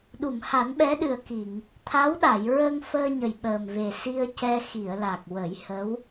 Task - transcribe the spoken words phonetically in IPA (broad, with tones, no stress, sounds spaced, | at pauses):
ɗ u˨˩˨ m h a˨˩˦ n ɓ ɛ˧˥ ɗ ɨ˨˩ ə̯ k i˨˩˨ ŋ | t̪ʰ a˧˥ w ɗ a˨˩˨ j ɹ ə˧ ŋ f əː˧ ɲ ə˨˩ j ɓ əː˨˩ m v e˨˩ s i˧ ə̯ c ɛ˧ x i˨˩˨ ə̯ l a˨˩ k̚ w ə˨˩˦ j h ə˧˥ w